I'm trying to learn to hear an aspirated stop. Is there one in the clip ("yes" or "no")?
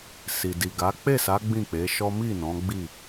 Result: no